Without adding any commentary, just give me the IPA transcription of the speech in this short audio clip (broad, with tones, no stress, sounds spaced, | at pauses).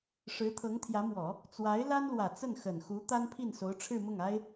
ʂ ɻ̩˧˥ t̪ʰ ɤ˧˥ ŋ t̪ʰ j ä˧˥ m w ɔ˨˩˦ | t͡s w a˧˥ ɪ̯ l a˥ n l w ä˨˩ t͡s ə˥˩ n x ə˨˩ n x u˧˥ t̪ a˥ n pʰ i˥˩ n s o˧˥ ʊ̯ ʈ͡ʂʰ ɻ̩˥˧ m ʊ˥˩ ŋ a˥ ɪ̯